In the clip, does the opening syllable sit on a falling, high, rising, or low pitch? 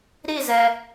falling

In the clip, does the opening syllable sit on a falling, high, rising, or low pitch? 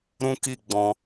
high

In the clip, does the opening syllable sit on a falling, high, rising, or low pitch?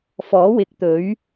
rising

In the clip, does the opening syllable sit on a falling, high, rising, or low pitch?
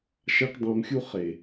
high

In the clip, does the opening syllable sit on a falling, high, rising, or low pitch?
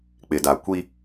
low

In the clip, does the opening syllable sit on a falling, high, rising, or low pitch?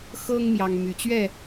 high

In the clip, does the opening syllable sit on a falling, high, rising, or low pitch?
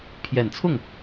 low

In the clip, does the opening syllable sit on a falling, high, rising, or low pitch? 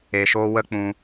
low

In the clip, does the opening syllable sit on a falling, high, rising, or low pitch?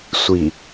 low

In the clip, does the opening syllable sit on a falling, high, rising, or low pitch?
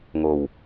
low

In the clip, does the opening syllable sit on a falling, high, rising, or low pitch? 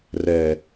low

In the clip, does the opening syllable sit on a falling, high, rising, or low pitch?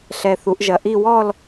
low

